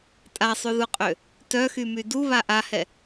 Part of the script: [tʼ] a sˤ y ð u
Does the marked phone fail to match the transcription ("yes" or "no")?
no